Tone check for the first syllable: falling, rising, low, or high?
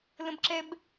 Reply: high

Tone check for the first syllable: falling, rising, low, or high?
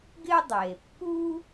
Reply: high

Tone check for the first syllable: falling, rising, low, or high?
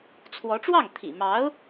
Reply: rising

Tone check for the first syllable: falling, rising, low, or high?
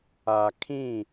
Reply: low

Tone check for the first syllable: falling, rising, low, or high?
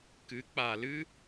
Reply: rising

